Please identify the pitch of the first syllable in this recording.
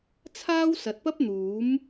high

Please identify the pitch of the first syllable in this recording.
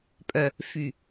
low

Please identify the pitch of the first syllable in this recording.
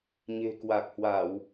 low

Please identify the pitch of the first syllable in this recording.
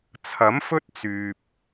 rising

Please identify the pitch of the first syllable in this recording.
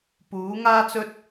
rising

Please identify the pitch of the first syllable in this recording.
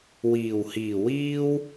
low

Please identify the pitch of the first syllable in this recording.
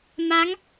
rising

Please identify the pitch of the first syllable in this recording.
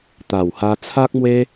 low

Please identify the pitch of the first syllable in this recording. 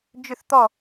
falling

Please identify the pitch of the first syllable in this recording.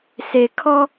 low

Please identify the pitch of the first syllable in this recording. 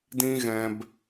high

